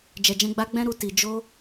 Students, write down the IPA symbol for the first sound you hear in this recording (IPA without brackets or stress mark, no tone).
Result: d͡ʒ